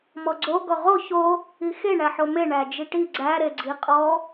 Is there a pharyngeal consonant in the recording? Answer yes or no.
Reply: yes